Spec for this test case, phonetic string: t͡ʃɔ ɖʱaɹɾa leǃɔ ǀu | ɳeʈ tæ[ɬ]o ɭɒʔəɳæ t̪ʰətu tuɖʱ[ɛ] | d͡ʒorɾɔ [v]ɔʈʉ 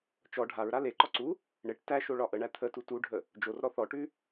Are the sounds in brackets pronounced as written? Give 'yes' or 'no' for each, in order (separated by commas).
no, no, no